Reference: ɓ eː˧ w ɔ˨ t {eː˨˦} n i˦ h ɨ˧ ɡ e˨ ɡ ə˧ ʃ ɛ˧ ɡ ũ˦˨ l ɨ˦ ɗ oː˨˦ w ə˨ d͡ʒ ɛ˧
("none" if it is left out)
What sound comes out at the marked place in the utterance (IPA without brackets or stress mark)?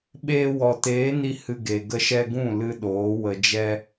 eː˨˦